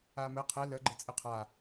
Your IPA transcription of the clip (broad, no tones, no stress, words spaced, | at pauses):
amɘ qʰɛ lə ɡ͡ǃɘt͡sʼɯqʰa